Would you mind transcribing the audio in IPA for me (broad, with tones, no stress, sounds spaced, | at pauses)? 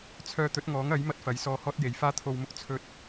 t͡sʰ œː˧ t̪ ɵ˨˥ t̚ ŋ ɔː˨˥ ŋ ɐ˨˥ j m ɐ˥ t̚ f ɐ˨˥ j s ɔː˧ h ɔː˥ t̚ j e˨˧ j f aː˥ t̪ʰ o˧ w m ʊ˥ k̚ t͡sʰ ɵ˥ t̚